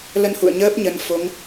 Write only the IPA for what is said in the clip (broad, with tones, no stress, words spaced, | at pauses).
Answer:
lə˧nhṵ˧˨ə̯ɲəː˦˥p̚ ɲə˨˦nfo˨˦ŋ